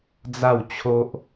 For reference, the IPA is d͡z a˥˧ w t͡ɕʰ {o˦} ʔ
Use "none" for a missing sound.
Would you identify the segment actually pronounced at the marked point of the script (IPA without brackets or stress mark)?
o˦